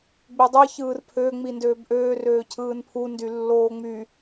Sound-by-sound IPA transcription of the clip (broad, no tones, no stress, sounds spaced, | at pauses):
ɡ͡b i dˤ ɯ ç ɯː r pʰ ø ŋ͡m i n d øː b ʔ øː r øː cʰ ɯː n pʰ u n d y lː oː ŋ͡m y